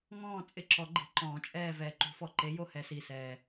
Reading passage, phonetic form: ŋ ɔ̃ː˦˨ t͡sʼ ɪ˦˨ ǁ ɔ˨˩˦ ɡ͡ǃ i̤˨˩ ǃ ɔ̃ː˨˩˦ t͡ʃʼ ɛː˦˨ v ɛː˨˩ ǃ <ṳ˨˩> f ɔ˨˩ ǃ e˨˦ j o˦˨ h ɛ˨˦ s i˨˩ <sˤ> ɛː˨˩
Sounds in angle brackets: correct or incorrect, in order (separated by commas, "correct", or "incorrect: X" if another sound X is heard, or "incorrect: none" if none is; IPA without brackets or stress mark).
incorrect: ṳ˨˩˦, incorrect: s